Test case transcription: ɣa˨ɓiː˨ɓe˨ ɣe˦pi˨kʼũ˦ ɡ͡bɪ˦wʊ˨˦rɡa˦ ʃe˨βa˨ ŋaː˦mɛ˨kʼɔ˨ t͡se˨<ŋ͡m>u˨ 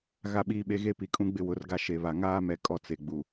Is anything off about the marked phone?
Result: yes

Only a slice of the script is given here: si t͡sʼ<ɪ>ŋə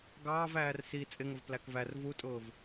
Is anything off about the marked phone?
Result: no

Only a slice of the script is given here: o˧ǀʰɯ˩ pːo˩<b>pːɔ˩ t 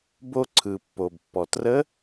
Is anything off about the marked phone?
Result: no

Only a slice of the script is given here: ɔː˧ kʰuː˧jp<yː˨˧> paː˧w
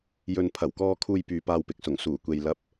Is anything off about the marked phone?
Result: yes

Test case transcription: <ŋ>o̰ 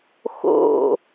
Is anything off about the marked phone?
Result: yes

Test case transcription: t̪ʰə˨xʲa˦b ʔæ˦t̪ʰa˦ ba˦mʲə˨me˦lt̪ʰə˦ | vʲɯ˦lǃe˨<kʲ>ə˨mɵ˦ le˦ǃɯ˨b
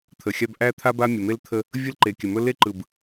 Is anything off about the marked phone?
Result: no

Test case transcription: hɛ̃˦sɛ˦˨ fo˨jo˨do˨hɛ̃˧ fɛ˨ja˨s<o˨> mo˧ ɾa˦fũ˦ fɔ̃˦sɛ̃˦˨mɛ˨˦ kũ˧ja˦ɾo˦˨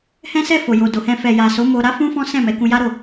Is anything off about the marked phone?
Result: yes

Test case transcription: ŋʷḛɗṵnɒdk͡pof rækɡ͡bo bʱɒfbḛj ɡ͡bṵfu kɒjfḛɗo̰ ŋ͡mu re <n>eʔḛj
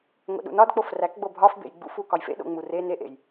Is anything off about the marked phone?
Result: no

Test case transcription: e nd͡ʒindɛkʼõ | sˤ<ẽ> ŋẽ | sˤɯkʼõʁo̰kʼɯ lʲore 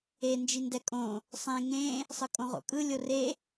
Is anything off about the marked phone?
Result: no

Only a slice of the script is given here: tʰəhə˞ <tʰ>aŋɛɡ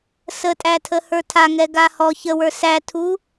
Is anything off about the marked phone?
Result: no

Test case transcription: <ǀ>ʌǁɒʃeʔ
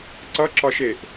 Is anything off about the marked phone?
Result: no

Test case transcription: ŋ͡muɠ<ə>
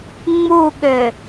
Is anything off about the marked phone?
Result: yes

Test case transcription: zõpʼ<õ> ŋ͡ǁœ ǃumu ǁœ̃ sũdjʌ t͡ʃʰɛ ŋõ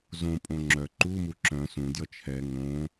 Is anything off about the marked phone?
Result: no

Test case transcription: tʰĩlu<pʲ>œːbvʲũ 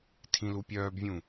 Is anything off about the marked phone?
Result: no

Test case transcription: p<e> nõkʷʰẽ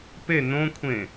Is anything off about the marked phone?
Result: no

